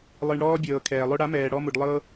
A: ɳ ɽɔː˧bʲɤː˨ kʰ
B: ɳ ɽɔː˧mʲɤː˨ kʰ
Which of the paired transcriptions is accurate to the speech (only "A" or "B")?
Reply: A